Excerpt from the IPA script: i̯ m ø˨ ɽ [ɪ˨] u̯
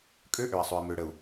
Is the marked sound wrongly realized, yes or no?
yes